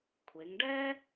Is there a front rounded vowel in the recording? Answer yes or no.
no